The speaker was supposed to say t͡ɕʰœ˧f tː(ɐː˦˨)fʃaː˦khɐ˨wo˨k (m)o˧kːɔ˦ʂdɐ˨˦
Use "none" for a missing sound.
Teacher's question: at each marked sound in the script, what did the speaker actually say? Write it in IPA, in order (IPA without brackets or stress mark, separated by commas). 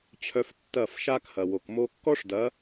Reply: ɐː˦˨, m